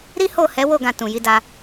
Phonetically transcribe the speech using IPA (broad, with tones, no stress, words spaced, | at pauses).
ɾi˦ho˦˨hɛ˨˦wo˦˨ ɡã˧tũ˨ ji˨˦da˧